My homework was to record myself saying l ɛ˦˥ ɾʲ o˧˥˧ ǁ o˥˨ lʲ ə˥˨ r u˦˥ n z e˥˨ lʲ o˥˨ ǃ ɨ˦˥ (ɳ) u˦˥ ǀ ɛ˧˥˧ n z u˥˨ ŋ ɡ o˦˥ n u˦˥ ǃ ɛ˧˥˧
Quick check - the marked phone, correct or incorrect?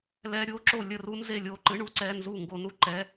correct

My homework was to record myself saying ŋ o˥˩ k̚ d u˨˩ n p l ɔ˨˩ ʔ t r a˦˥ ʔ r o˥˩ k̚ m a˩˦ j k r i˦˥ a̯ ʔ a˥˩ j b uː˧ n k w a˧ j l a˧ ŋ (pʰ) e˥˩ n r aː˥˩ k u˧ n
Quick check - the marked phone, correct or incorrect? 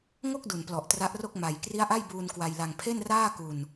correct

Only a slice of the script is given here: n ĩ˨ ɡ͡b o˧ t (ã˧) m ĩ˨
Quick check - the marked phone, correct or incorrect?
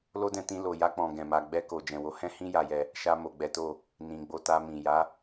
incorrect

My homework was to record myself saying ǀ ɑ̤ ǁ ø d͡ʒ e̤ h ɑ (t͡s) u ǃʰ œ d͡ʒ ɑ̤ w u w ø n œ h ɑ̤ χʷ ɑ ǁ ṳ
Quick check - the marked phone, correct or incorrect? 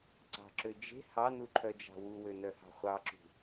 incorrect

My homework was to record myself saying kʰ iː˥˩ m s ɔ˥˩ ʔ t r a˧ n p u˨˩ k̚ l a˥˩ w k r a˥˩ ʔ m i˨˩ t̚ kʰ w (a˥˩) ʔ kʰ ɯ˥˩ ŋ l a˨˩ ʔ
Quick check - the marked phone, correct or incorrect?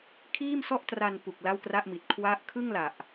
incorrect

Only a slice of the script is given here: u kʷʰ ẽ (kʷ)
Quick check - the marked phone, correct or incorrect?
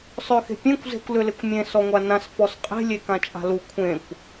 correct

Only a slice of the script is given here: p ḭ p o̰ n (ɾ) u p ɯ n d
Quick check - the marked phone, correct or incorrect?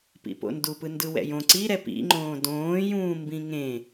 incorrect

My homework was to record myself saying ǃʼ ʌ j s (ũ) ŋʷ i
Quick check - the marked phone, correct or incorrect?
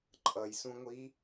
correct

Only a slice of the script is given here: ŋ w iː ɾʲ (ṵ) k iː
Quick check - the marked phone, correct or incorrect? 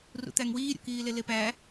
incorrect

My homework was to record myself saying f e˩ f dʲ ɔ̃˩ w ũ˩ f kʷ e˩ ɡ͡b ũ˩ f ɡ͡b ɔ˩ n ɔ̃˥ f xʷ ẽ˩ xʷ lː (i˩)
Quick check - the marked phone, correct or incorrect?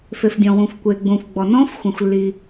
correct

